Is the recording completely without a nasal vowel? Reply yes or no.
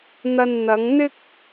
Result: yes